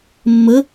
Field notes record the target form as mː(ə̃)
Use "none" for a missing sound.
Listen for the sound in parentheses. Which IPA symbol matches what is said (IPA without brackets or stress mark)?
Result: ə